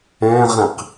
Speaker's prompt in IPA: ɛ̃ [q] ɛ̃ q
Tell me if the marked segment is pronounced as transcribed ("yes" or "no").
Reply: no